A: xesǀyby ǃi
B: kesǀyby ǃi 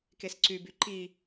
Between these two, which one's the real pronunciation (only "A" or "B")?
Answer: B